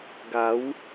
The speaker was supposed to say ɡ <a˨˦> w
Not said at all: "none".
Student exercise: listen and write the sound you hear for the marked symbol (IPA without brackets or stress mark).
a˨˦